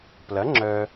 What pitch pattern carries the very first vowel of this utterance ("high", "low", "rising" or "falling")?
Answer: rising